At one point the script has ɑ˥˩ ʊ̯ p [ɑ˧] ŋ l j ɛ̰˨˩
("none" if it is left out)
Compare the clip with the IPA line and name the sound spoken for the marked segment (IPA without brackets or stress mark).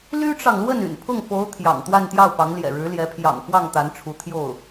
ɑ˧˥